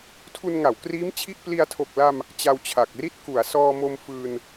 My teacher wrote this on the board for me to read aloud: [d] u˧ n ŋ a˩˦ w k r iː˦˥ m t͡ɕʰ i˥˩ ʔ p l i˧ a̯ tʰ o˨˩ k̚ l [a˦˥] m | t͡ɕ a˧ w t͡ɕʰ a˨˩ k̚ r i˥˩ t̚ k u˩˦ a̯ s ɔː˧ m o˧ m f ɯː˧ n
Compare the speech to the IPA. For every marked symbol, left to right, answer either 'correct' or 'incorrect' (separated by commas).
incorrect, incorrect